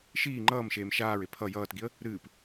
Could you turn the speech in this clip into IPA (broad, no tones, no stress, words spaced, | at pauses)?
ʃiː ŋ͡ǃʌːmʃeːm ʃaːɹe pʰʌ jʌːtɡiə̯ | ɾɨːp